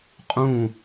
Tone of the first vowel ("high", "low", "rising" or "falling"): falling